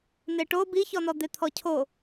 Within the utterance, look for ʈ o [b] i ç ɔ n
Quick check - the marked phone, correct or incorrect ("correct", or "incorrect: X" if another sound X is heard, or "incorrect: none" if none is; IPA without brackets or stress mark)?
correct